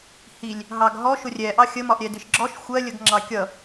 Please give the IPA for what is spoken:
hilʲ | ɦɑɡɦɔ ʃʊrʲɛʔɑ xʲəmɒʔɾʲɛ dɪʃɡ͡ǁɔʃ xʷɜlʲəɡ ŋ͡ǁɑkʲʌ

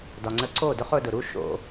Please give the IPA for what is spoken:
dɒ˨ŋ͡ǀə˧ǀo˦˨dʊ˦χ ʊ˧dʊ˨ɾu˦ ʃo̰˧

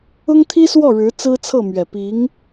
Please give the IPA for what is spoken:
ʊ˥ŋt̪ʰi˥swɔ˥˩ ɻɻ̩˧˥t͡sɹ̩˥t͡sʰɤ˥˩mɥɛ˨˩ pi˧˥ŋ

